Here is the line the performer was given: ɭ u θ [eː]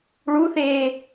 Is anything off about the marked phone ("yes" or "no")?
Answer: no